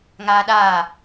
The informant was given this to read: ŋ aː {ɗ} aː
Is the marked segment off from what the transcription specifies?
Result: no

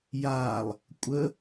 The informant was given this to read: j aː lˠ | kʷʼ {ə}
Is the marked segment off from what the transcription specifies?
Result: no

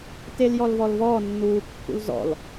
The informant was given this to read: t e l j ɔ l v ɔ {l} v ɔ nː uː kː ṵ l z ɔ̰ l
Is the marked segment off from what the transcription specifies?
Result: no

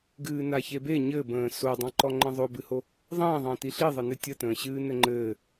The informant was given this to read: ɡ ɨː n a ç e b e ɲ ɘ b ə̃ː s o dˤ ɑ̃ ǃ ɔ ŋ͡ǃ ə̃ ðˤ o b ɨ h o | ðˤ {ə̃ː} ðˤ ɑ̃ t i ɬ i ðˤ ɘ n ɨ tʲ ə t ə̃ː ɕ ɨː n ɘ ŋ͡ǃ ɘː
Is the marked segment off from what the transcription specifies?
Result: no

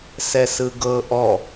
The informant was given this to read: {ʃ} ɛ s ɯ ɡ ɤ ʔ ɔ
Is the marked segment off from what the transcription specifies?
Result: yes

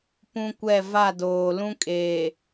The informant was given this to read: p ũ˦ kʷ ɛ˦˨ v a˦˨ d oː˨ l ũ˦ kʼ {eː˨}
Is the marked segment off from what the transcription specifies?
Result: no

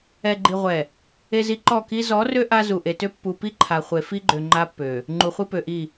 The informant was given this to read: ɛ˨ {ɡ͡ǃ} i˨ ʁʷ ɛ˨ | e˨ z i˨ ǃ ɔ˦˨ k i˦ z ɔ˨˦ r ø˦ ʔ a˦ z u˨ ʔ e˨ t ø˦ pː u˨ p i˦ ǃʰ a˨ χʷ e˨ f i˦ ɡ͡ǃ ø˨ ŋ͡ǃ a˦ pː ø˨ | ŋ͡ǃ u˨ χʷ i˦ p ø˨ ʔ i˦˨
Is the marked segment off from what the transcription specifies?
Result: no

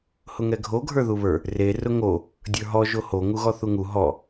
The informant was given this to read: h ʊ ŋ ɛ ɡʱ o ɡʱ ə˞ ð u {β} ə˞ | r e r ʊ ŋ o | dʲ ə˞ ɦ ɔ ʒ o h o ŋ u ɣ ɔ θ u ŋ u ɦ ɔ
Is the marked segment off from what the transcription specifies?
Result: no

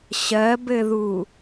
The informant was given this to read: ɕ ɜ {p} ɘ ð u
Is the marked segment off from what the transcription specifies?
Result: yes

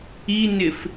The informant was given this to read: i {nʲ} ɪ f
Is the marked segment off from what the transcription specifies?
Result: yes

